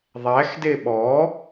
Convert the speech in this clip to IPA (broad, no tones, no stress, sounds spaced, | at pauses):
ðˤ æ x d e ɓ ɔ